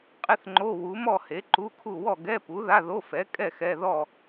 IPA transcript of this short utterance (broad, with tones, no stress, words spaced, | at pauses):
qʼɪ˥˧θŋ͡ǃo˧˥˧ wu˨˥mɔ˥˧ he˨˥ǃu˧˥˧kʰu˥˧ wɔ˥˧ ɡɛ˧˥˧pu˨˥ða˧˥˧ðo˧˥˧ fɛ˨˥ kʼɛ˥˧xɛ˧˥˧ ðɔ˥˧